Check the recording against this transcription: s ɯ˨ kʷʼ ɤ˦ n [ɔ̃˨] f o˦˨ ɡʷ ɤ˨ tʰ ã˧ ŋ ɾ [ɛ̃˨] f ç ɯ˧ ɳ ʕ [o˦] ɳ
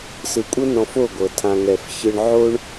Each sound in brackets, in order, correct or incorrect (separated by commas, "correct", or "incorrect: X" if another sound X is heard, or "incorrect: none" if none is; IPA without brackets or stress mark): incorrect: ɔ̃˧, incorrect: ɛ˨, correct